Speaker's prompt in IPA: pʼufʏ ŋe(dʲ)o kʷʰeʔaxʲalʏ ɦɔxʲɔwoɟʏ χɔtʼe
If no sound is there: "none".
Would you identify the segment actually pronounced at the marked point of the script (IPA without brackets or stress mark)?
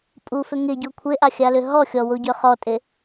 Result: ɟ